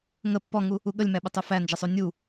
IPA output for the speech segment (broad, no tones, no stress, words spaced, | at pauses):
ŋə pːɔŋu | uɠəlʲmæɓə tˤufænd͡ʒəsˤu nʲu